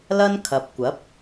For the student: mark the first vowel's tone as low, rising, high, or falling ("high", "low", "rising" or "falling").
high